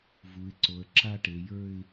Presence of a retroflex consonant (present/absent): present